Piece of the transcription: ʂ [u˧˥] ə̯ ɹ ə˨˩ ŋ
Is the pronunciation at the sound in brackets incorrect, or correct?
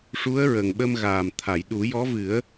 correct